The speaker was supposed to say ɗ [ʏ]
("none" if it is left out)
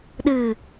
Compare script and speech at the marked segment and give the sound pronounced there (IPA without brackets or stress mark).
ɨ